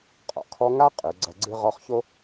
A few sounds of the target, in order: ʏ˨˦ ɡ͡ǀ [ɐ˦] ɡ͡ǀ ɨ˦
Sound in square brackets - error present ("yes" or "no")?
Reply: no